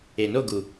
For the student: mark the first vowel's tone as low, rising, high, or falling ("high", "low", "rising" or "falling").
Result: low